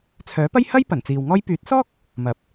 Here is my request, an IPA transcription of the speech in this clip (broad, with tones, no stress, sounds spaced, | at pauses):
t͡sʰ œː˨˥ p ɐ˥ j h ɐ˥ j p ɐ˨˩ n t͡s iː˨ w ŋ ɔː˥ j p yː˨˥ t̚ s ɔː˥ k̚ | m ɐ˨˥ p̚